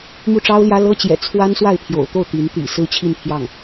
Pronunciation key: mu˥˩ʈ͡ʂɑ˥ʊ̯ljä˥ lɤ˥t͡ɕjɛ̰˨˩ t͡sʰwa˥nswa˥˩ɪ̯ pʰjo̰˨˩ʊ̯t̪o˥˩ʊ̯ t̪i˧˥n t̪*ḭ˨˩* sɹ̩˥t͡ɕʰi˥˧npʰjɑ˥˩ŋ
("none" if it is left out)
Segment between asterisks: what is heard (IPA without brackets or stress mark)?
ḭ˨˩